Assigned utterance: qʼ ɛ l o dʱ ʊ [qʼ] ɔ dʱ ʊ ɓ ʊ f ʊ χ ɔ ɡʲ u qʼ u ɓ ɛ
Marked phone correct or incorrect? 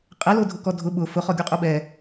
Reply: incorrect